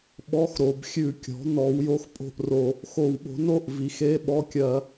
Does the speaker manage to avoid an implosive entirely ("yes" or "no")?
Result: no